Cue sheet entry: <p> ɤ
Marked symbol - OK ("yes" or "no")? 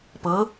yes